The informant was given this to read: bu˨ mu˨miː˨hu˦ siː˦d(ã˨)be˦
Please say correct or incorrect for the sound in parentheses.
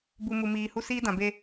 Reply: correct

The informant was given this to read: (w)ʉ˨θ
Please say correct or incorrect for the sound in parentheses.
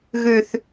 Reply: incorrect: ɣ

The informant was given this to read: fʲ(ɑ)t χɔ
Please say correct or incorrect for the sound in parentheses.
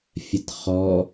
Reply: incorrect: ɐ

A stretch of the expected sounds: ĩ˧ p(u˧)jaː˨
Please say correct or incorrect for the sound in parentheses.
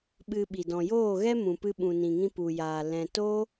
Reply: incorrect: u˨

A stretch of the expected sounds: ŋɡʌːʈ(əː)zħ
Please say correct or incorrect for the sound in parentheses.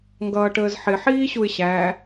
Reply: correct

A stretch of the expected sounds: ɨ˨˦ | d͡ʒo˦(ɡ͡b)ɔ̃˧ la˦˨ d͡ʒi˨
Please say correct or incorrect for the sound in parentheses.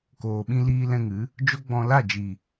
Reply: correct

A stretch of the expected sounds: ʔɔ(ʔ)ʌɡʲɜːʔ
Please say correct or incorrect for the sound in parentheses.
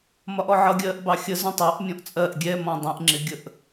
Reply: incorrect: ʕ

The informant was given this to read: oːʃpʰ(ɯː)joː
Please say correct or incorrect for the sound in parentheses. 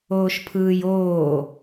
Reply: correct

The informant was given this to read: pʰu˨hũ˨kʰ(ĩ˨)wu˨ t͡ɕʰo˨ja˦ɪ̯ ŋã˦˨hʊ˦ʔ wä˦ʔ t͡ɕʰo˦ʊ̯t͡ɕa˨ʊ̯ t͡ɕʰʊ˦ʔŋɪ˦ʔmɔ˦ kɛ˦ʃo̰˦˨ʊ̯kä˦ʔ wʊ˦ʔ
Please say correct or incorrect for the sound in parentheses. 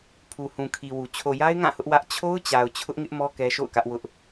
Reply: incorrect: i˨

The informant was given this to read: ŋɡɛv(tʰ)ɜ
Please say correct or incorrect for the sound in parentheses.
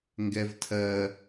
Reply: correct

